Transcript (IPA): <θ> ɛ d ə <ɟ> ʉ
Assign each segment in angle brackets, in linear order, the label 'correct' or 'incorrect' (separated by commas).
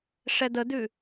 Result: incorrect, incorrect